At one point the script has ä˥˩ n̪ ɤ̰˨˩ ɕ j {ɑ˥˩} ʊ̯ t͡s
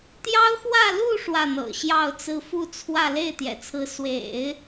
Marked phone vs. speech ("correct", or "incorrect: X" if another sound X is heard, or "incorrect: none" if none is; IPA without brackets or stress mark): correct